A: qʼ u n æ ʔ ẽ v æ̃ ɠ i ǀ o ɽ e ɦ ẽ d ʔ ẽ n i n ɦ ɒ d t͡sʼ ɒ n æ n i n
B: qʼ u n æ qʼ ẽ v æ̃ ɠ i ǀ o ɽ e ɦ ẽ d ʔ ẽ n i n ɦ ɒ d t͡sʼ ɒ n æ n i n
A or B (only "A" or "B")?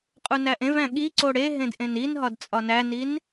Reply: A